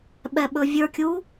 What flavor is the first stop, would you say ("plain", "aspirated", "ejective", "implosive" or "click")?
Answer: implosive